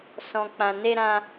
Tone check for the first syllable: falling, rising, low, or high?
low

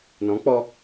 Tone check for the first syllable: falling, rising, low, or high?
rising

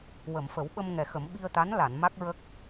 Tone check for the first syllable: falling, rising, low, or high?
low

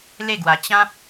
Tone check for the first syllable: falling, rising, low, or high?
falling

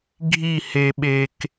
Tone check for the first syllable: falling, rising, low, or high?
falling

